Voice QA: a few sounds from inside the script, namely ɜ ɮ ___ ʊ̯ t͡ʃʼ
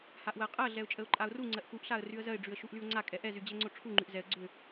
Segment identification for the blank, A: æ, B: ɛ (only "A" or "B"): B